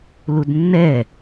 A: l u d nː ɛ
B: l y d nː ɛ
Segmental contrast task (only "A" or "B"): A